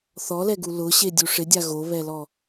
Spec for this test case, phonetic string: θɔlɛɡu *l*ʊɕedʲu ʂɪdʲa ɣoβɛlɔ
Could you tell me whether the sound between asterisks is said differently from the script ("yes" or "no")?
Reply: no